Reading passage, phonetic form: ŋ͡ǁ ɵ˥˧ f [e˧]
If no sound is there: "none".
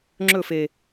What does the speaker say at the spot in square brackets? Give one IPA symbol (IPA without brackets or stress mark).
e˧